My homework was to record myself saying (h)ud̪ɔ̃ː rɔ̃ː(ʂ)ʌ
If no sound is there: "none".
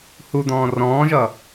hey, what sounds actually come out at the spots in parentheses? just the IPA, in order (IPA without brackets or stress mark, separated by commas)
h, ʒ